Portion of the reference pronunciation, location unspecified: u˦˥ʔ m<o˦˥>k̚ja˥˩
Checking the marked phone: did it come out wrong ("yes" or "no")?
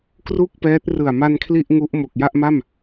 yes